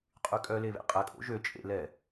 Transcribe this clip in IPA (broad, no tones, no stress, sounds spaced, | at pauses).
qʼ y kʼ œ l e β ḛ qʼ ɛ kʼ o̰ ʒ ø t͡ʃʼ ḛ l ɛ